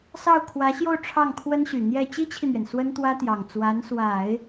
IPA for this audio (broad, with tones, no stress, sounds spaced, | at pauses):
s ɑ˥˩ ʊ̯ kʰ w ä˧˥ ɕ j o˥˧ ʊ̯ ʈ͡ʂʰ ɑ˥˩ ŋ kʰ w ə˥ n ɕ y˨˩ n̪ j ɛ˥˩ t͡ɕ i˥ t͡ɕʰ i˨ n̪ ɥ ɛ˩ n s w ə˥ n t̪ w ä˥ t̪ j ɑ˨˩ ŋ t͡s w a˧˥ n s w a˨˩˦ ɪ̯